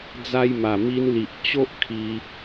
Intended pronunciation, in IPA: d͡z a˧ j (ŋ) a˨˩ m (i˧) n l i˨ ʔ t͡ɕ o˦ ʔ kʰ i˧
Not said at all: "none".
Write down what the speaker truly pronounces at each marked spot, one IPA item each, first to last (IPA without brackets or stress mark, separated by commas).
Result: m, i˧